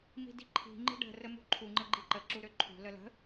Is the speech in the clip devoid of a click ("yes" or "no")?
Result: no